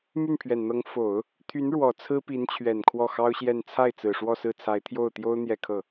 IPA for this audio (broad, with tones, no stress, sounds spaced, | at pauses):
m y˥˩ n pʰ ɥ ɛ˨˩ n n̪ ɤ˧˥ ŋ f o˨˩˦ ʊ̯ | t̪ʰ y˧˥ n ɻ w ɔ˨˩ t͡sʰ ɹ̩˥ p i˧˥ n t͡ɕʰ ɥ ɛ˨˩ n kʰ w ɔ˥˩ x ɑ˥ ʊ̯ ɕ j ɛ˥˧ n t͡sʰ a˥˩ ɪ̯ t͡s ɹ̩˨˩ ʂ w ɔ˥˧ s ɹ̩˥˩ t͡sʰ a˧˥ ɪ̯ t̪ʰ j o˥˩ ʊ̯ t̪ j o˥ ʊ̯ n̪ j ɛ˥˧ kʰ ɤ˥˩